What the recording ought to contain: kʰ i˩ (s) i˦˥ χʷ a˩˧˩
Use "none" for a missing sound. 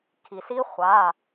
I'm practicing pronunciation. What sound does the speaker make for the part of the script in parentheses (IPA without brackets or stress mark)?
s